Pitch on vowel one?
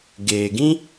low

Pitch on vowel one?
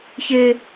high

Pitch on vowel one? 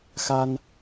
high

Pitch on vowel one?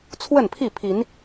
falling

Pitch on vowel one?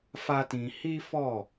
high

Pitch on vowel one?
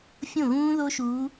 falling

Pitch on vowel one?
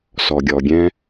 low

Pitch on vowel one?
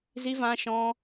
high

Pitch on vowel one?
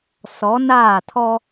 rising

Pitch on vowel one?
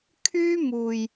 high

